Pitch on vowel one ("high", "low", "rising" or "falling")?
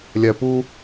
low